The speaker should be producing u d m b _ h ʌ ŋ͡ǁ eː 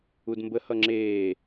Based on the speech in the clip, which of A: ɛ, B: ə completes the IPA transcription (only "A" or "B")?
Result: B